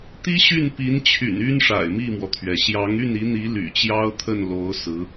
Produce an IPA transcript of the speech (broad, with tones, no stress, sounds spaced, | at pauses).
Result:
t̪ i˥ ɕ y˥˩ n p i˧˥ n t͡ɕʰ y̰˨˩ n y˥ n ʂ a̰˨˩ ɪ̯ m i˥˩ m w ɔ˩ t̪ʰ ɥ ɛ˩ ɕ j ɑ˧˥ ŋ y˥˩ n i˧˥ n̪ i˧˥ l y̰˨˩ t͡ɕ j ɑ˥ ʊ̯ t̪ʰ ə˥˩ n l o˧˥ ʊ̯ s ɹ̩˧˥